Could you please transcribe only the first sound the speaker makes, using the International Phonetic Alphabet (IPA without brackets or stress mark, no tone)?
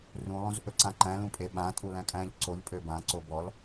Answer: r